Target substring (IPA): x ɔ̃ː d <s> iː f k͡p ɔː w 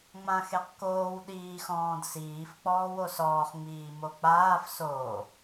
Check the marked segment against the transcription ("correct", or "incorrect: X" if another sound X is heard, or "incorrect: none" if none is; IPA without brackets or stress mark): correct